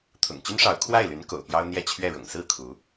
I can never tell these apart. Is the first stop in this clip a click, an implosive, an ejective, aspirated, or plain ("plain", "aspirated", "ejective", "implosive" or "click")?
aspirated